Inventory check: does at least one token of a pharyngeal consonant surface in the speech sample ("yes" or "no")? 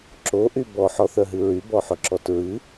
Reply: yes